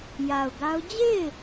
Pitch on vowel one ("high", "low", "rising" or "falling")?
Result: low